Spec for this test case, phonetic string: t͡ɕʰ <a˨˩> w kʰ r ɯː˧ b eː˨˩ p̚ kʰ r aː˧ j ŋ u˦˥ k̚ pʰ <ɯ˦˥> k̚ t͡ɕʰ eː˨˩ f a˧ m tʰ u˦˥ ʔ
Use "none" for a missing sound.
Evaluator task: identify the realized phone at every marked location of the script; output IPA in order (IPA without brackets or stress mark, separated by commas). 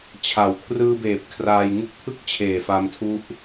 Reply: a˨˩, ɯ˥˩